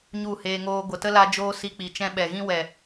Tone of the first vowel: falling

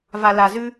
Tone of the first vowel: low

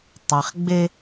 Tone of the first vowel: low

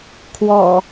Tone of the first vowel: low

